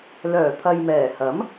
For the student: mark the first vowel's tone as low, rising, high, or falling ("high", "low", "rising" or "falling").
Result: low